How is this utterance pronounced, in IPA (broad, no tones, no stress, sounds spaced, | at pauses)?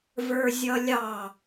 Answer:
v ə˞ zʲ ʌ lʲ ɑ